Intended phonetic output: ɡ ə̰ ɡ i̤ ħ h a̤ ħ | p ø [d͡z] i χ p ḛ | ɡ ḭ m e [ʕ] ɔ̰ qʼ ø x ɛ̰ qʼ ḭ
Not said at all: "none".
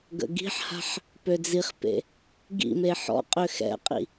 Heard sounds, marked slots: d͡z, ħ

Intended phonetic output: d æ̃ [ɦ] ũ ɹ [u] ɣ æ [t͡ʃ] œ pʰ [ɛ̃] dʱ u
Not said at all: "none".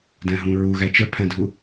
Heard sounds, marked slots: ɦ, u, t͡ʃ, æ̃

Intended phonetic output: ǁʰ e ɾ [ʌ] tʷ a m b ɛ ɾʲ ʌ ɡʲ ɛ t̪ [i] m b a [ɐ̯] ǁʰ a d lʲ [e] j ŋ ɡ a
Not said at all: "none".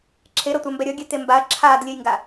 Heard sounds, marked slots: ʌ, e, ɐ̯, e

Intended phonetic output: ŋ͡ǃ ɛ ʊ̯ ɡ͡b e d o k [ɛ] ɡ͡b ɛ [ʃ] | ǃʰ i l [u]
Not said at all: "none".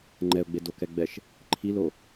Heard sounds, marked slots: ɛ, ʃ, o

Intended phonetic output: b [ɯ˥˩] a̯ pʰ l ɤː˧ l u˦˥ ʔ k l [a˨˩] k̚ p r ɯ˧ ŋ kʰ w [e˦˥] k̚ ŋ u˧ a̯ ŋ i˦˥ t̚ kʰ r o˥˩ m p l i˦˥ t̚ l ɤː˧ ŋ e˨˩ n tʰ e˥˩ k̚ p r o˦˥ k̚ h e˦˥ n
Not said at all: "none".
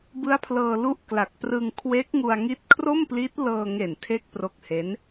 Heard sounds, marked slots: ɯ˦˥, a˨˩, e˦˥

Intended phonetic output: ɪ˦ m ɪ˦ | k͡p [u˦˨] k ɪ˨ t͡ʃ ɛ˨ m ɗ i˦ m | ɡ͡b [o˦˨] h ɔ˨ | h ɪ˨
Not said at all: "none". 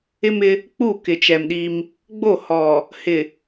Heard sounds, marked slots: u˦˨, o˦˨

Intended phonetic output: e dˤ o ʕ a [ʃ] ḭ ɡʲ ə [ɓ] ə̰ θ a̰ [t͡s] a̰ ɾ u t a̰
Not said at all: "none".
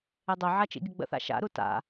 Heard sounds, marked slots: t͡ʃ, ɡ͡b, ʃ

